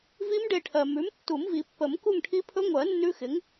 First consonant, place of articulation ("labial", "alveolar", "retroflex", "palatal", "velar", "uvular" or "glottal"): labial